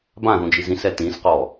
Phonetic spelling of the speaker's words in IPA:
b ã ð ũ d͡ʒ i z ĩ s ɛ t ĩ s q ɔ

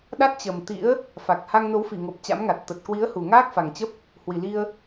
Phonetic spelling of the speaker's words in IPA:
ɗ a˦˥ t̚ t͡ɕ ə˨˩ m t̪ ḭ˧˥ ə̯ | f a˨˩ k̚ h a˧ ŋ n o˨˦ w f i˧˩ ŋ o˨˩ p̚ t͡ɕ a̰˧˥ m ŋ a˨˩ t̚ t̪ ə˨˩ t̚ k w i˨˦ ə̯ h u˨˩ ŋ aː˦˥ k̚ f a˨˩ ŋ t͡ɕ ə˦˥ p̚ | h w i˨˩ l i˧ ə̯

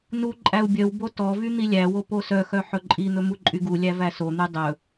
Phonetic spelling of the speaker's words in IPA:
n u ǃʼ æ u̯ bʲ œ w b o t ɔ v y n̪ i lʲ æ w o p o s œ x œ ħ ɵ ǃʼ i n̪ ɵ m u ǃʼ y ɡ u lʲ æ v æ s o n̪ y dˤ ɵ

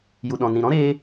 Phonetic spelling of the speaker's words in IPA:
j u˨ ɗ ɔ̃˨ n ĩ˨ ɾ ɔ̃˦ ɾ eː˧

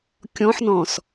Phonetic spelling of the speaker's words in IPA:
kʲ ɔ̃ ħ n ɔ̃ s

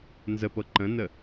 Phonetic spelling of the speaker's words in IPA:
n z ə p ɤ ǃ ə̃ n ə

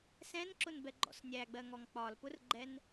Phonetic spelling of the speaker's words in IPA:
s ɛ̃ n ǁ ʊ n b ɛ ɡ͡ǃ ɔ̰ s nʲ æ ɡ͡b ɜ ŋ ɔ ŋ k͡p ɒ l p ʊ r ɡ͡ǃ ɛ n

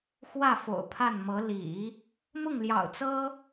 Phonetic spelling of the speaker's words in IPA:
x w ä˥˩ f o̰˨˩ ʊ̯ pʰ a˥˩ n m ɤ˧˥ l ḭ˨˩˦ | m ʊ˥˩ ŋ l j ɑ̰˨˩ ʊ̯ t͡s ɤ˥

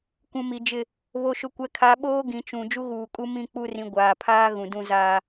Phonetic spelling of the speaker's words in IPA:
kʷ ũ˨ m i˨ d͡ʒ ɪ˦˨ | β o˨ ʃ ʊ˨ kʷ ɛ˨ kʰ a˨˦ ɓ oː˦ ɡ ĩ˨ t͡ʃ ũ˨ d͡ʒ u˦ ɣ uː˨ kʼ u˦ m ĩ˦˨ k͡p u˦˨ r ĩ˨ ɡʷ aː˨ pʰ aː˦ ɣ ũ˨ d ũ˦ z aː˦

